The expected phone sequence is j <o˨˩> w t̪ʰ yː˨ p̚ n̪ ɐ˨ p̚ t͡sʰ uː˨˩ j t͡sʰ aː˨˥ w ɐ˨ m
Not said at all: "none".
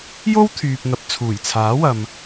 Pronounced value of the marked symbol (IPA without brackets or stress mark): o˥